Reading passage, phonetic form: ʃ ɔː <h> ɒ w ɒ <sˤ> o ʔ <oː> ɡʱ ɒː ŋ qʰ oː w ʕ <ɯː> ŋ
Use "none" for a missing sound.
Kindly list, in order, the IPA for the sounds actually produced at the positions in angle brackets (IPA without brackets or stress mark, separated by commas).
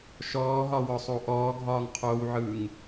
ɦ, sˤ, ɔː, ɯː